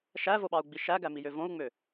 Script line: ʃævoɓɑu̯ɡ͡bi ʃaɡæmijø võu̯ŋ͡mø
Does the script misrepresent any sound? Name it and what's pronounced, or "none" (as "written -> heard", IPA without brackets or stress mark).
a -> æ